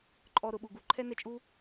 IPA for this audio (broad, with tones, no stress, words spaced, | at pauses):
ǃʼɔ˨ ɾʊ˨ɓu˨ɡu˧ ǃʰɛ˦nɛ˧t͡ʃʼu˦